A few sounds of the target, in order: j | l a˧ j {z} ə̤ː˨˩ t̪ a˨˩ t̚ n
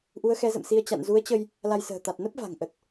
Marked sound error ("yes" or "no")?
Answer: yes